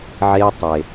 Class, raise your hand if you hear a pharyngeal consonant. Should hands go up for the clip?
yes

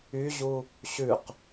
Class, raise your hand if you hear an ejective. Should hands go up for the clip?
no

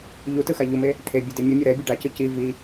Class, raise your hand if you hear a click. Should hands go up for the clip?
no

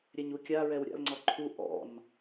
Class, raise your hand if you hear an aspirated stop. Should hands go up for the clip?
yes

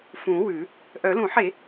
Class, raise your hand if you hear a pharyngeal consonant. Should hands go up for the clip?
yes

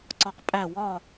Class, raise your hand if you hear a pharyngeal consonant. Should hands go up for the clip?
no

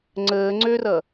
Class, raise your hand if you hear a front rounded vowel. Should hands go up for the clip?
yes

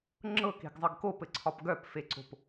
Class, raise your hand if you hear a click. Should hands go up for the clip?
yes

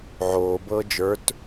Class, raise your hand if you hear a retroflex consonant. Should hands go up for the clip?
no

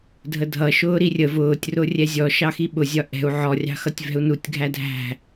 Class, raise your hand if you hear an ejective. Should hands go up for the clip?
no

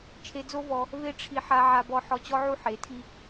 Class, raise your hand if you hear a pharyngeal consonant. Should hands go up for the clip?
yes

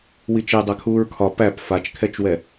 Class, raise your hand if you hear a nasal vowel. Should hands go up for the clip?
no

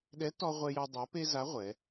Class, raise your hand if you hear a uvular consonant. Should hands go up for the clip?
yes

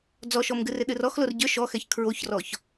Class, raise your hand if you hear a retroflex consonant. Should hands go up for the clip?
no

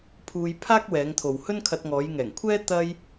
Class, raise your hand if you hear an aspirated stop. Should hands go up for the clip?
yes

